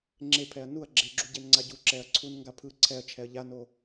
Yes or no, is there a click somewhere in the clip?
yes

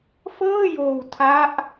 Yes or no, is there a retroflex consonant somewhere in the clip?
no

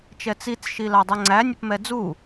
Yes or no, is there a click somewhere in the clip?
yes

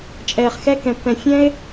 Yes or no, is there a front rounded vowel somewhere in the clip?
no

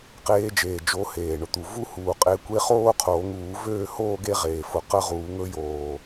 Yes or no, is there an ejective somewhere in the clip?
yes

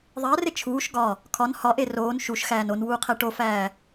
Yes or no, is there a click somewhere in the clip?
no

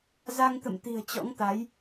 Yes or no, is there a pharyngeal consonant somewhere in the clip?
no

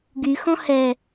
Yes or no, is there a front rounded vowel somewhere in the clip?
yes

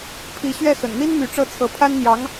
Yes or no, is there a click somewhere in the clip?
no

